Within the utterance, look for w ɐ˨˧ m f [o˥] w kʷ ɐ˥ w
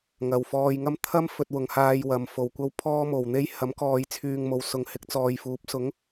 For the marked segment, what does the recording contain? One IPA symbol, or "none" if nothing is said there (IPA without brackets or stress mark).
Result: o˨